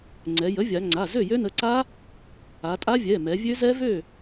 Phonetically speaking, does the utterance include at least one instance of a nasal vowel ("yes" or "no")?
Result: no